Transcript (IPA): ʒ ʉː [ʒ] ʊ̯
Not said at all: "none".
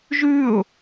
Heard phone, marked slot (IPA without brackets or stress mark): none